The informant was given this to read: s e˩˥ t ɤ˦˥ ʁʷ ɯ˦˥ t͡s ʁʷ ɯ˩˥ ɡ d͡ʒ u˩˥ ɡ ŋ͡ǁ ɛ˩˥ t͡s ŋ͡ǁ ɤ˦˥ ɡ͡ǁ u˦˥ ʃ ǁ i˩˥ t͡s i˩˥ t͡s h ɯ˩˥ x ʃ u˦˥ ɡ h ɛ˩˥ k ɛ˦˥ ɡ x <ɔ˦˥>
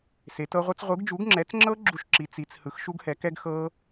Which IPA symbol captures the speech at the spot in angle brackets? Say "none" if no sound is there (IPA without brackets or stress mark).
ɤ˦˥